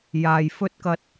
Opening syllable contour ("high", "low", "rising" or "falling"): low